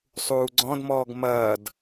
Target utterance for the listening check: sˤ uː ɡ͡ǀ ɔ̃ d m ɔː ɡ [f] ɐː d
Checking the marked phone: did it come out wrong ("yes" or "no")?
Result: yes